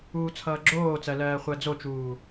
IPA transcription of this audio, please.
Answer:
uː t͡sʰ ʌː ɡ͡ǁ oː t͡s ɜ l ɜː χʷ ɜ d͡z o t͡ʃ uː

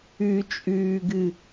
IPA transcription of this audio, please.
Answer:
ʉ t͡ʃʼ ʉː ɡ ɨ

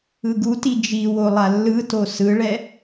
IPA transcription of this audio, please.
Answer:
ɯ ɡ u t i d͡ʒ i w o lˠ a lː ɯ t o s ɯ ɭ ɛ

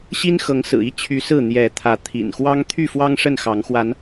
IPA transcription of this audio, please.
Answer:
ɕ i˦ n x ɤ˨˦ ŋ s ɹ̩˨˩ i˦ t͡ɕʰ y˨˦ s ɹ̩˥˨ n̪ j ɛ˨˦ t̪ʰ ä˨˦ t̪ʰ ḭ˨˩ n x w ɑ˦ ŋ t̪ʰ y˥˨ f w ɑ˦ ŋ ʂ ə˥˨ n x ɑ˨˦ ŋ x w a˨˦ n

